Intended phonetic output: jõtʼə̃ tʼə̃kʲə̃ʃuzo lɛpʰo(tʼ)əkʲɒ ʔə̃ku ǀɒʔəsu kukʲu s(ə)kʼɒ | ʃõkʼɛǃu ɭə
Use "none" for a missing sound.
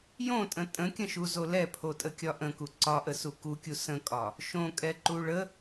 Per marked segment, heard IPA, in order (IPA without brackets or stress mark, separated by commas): tʼ, ə̃